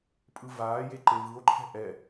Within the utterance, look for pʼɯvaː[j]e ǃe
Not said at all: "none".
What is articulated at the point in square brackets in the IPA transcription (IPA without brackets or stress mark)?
j